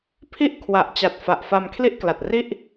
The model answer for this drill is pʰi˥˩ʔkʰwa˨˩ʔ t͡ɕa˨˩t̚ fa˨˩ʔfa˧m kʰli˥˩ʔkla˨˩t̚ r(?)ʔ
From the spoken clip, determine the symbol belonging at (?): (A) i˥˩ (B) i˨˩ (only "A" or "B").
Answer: A